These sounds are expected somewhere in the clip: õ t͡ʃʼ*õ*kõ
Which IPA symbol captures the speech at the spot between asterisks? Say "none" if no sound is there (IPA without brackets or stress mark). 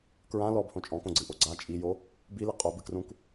ɔ̃